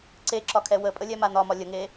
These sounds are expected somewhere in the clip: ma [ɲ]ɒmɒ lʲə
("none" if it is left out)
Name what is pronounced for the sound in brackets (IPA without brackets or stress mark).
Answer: n